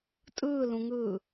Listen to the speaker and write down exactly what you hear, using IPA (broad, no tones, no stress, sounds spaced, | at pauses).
tʼ ɯː l ũ ŋ ɯː